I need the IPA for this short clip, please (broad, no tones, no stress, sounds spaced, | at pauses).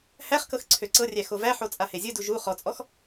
h æ χ k ɤ x ǀʰ ø ǀ ɤ rʲ æ x o v æ ħ o t͡sʼ a h e zʲ ɯ d u ʒ u χ ɔ t͡sʼ ɔ x